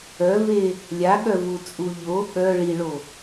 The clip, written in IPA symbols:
œve | lʲaɠœvut͡sʼu ʎo ɠœ ɭiɭo

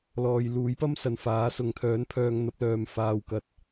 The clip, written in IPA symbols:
lɔː˨jluː˨˥jpɐ˥msɐ˨n faː˨˥sʊ˨ŋt̪ʰœː˨˥npʰœː˧ŋ n̪ɐ˨˥p̚lœː˨m faː˧w kɐ˨t̚

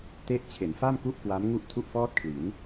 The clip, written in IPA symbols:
te˦˥ʔt͡ɕʰe˩˦nfa˥˩m ku˥˩ʔkwa˦˥mŋu˥˩ʔ tʰu˥˩ʔfɔː˥˩t̚kʰli˩˦n

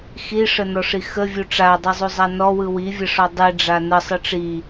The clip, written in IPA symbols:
xiʂənɔʂi xəvʲu ʈ͡ʂadˤɯzˤuzˤa nɔwɯ wivʲəʂɔ dˤiɖ͡ʐa nəsˤɯ ʈ͡ʂi

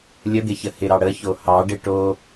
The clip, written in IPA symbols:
lʲəd̪ɪçə hɪɾɑ ɽəço hɑɖɪ ʈo

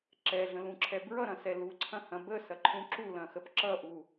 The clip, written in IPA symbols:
ǁɛɮə̃lũǁʰɛ bɹʌɾɐ̃sɛ luǀʰɐ̃hɐ̃ bəsɐǃʰũ ǁulɐ̃xəp ǁʌʔu

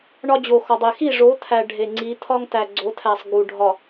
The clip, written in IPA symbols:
ɳɒ˦d͡ʑo˨xɒ˨dˤe˨ xi˦˨ʐo˨˦t̪ʰæ˨ ɖʱe˨ ŋ͡ǀi˨˦ t̪ʰɒ˦ŋt̪æ˨ɡ͡ǀo˨˦t̪ʰæ˨sˤ ɡu˨ɖʱɒ˨

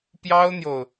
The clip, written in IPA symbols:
pjɑ˥ʊ̯n̪jo˨ʊ̯

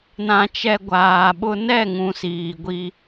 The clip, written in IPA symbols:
nã˨t͡ʃɛ˨ ɡʷaː˨ɓʊ˦ nɛ˦˨ŋũ˨ siː˨ɡʷi˦

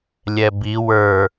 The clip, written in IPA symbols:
lʲɛbi wə˞

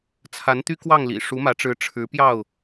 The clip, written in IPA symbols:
t͡sʰa˨˦n t̪y˦ kwɑ˥˨ŋlḭ˨˩ ʂu˨˦mä˨˦ʈ͡ʂɻ̩˨˦ ʈ͡ʂʰɻ̩˨˦ pjɑ˥˨ʊ̯

